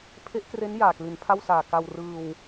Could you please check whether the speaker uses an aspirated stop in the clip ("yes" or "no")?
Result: yes